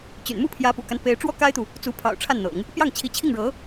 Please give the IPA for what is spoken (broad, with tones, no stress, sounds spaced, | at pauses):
t͡ɕ y̰˨˩ n m u˥˩ pʰ j ä˧˥ p ṵ˨˩ k a˦ n p e˧˥ ɪ̯ ʈ͡ʂ w ɔ˥ k a˥ ɪ̯ t̪ u˨ | t͡s u˧˥ pʰ ɑ̰˨˩ ʊ̯ ʈ͡ʂʰ a˥˩ n n̪ ɤ̰˨˩˦ ŋ | p j ɑ˥˩ ŋ t͡ɕʰ i˧˥ t͡ɕʰ i˥˩ ŋ ɻ ɤ˧˥